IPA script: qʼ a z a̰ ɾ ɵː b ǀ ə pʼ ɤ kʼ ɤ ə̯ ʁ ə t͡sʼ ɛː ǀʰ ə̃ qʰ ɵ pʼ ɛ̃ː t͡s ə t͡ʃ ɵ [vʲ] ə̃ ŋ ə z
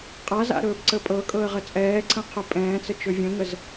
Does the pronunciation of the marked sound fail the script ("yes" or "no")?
no